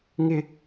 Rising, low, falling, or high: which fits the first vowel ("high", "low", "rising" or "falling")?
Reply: high